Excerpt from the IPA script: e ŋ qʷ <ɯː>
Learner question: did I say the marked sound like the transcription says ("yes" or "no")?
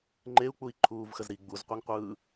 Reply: yes